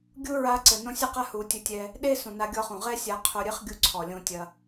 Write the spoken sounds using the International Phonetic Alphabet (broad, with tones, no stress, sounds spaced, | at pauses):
ɡʲ u˦ ɹ a˧ ǀ ɘ˨ n õ˦ sʲ ɨ˦ q a˦ h u˨ tʲ ɘ˧ tʲ ɛ˧ | ɗ e˦ s ũ˨ n a˧ ɡʲ ɔ˧ χ ũ˨ ʁ ɛ˦ sʲ a˧ qʰ o˧ ɾʲ ɨ˦ χ ɡʲ u˧ ǀʰ ɔ˨ lʲ õ˧ tʲ ɐ˧